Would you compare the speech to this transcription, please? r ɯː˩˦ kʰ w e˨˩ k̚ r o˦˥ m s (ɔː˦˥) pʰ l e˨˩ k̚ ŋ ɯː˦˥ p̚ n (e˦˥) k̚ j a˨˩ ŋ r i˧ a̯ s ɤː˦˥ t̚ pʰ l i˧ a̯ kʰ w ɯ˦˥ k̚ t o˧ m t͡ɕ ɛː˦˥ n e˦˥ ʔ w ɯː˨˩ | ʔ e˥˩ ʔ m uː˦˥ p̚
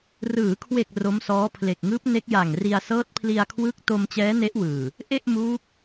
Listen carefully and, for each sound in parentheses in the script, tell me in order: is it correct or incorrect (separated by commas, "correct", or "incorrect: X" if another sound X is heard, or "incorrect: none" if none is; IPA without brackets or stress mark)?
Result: correct, correct